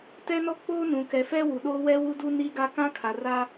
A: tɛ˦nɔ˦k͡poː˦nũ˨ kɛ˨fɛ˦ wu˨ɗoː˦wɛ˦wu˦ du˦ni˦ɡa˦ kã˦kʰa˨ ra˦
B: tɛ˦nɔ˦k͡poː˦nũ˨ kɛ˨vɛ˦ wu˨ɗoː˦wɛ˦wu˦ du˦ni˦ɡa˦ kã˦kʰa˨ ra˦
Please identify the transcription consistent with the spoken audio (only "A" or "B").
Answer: A